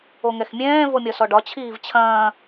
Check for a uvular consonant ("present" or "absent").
absent